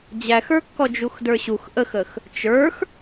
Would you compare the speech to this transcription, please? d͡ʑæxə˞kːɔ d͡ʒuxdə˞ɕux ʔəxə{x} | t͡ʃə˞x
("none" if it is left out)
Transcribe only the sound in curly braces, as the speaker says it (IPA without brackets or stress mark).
x